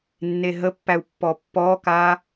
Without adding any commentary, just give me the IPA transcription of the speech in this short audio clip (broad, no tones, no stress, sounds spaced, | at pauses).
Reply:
nː e ɦ ə pː æ u̯ pː ɔ pː ɔ k a